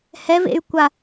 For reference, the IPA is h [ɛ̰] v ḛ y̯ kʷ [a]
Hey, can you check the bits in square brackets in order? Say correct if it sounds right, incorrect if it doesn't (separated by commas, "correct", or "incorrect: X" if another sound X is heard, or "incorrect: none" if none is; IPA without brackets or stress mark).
incorrect: ɛ, correct